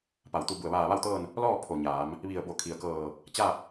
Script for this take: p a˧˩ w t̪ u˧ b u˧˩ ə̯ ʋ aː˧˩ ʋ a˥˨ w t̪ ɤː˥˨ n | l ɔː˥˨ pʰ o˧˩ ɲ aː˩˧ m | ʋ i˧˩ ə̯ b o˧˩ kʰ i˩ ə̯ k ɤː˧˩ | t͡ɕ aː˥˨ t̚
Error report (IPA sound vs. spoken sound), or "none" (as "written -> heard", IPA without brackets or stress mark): none